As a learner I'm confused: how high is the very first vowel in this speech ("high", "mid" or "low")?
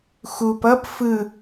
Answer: high